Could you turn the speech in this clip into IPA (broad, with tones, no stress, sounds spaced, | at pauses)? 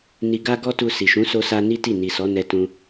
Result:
n i˧ ɡ a˦ ɡ ɔ˦ t u˧ s i˨ ʃ ũ˨˦ s o˦ s a˦ n i˦ t i˦˨ n i˨ s ɔ˨˦ n ɛ˧ t ũ˧